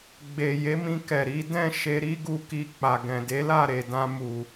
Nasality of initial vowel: oral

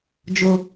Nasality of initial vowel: oral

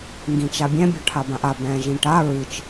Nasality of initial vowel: nasal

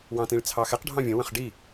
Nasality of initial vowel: nasal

